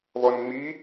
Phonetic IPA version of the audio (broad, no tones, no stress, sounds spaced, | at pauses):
β ɔ n ŋ͡m i